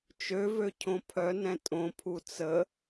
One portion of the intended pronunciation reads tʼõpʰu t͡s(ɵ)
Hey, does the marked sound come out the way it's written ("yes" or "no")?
no